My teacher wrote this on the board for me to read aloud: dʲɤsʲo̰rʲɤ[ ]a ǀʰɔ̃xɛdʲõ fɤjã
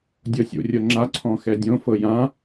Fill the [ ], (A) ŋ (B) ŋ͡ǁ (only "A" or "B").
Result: B